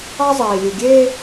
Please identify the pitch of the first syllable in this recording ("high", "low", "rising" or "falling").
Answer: high